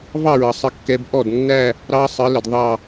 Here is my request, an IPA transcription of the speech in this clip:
v ɑ˥˧ ɹ ʌ˨˦ sˤ ə˥˧ kː ɛ˦˥ b ʔ ɔ˥˩ d nː æ˥˧ | ɾ ɑ˦˥ sˤ ə˨˦ l ə˨ d ðˤ ɑ˥˧

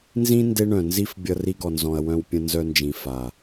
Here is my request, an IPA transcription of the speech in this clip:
n z ĩ˦ n d e˦ ɳ œ̃˨ n z i˦ f bʲ ʌ˦ r i˦ ɡ ɔ˨ n z ɔ̃˨ ɐ̯ w œ̃˦ w pʲ ə̃˦ n z œ˦ n d͡ʒ ĩ˨ f a˨

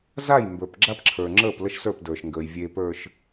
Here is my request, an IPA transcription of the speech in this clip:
z a˦˨ j m b ə˞˨ p ɡ͡ǁ a˦ p ǁʰ ə˞˨ ŋ͡ǁ əː˦˨ p l ə˦ ʃ s ə˞˦˨ p d ə˞˨ ʃ ŋ ɡ əː˨ j vʲ eː˨ p ə˞˨ ʃ

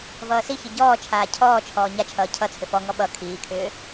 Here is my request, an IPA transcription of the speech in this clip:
v ʌː s i ç i ɟ ɔː t͡ʃʰ aː cʰ ɔː t͡ʃʰ ɔː ɲ a t͡ʃʰ ʌː cʰ ʌ t͡sʰ ʏ f ɔ ŋ ɔ ɓ ʌ kʰ iː kʰ ʏː

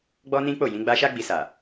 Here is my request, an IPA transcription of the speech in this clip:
ɡ͡b ɔ˦ n ĩ˦ k͡p o˦˨ j ĩ˨˦ ɡ͡b a˦ ʃ a˦ ɡ͡b i˧ s a˨

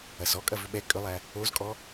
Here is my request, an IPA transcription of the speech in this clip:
ɐ s ɔ kʼ ɐ v ʏ ɓ ɛ kʼ ʏ lˠ æ | o z kʼ ɔ

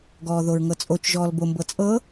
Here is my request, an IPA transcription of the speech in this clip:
ɡ ɔː ð o ɹ ŋ ɤ t͡sʼ o t͡ʃ ʒ ɔː l b o m b ɤ t͡sʼ ɤ

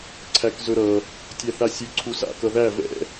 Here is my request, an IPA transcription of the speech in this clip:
ǀʰ æ k z ɵ ɾ ʌ | tʲ æ θ a sʲ ɵ ǀʰ u s a̰ k ʌ ð æ v ɛ̰

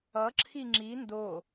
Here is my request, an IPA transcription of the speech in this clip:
ʌ ǁʰ i ŋ͡ǁ i n d o

